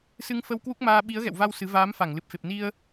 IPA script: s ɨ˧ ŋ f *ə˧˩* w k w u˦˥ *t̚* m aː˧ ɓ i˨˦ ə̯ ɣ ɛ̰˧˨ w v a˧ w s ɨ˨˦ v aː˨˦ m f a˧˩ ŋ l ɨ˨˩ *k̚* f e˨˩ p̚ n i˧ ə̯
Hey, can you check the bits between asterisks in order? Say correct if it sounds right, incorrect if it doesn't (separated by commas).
incorrect, incorrect, incorrect